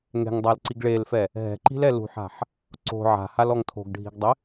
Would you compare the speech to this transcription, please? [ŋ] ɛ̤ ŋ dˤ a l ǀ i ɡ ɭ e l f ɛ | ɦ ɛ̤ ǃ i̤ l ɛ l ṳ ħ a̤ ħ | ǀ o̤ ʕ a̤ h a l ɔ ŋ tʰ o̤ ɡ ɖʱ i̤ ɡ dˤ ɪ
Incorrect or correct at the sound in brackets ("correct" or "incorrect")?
correct